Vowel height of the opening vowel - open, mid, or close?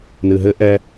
close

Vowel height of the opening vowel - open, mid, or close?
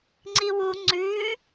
close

